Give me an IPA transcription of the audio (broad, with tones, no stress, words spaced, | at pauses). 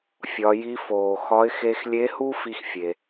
fʲɒ˩˧ji˧˥ foː˩ xɒ˧˥ɪ̯ xe˧xlʲe˧˥hu˥ fi˥xfʲe˩